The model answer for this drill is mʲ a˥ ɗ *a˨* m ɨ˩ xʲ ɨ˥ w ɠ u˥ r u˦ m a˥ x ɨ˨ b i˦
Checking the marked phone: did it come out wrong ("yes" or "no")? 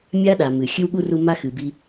no